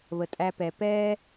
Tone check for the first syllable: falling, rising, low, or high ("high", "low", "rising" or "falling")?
low